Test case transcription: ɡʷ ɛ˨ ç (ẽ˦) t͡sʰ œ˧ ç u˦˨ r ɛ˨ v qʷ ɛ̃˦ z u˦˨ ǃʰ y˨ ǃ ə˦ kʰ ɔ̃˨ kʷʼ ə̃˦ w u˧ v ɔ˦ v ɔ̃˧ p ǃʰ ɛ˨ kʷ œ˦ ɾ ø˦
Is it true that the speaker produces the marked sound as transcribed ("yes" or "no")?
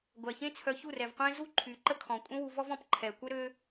yes